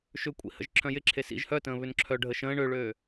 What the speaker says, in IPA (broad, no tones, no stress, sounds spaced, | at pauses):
ʃ ʏ kʷʼ ḭ h ə̰ ʒ ǁʰ œ̃ j ɪ ǁʰ e s ḭ ʒ h œ t ə̃ː β ʏ n ǁʰ œ ɖʱ ə ʃ ə̃ː ɳ ø ɭ øː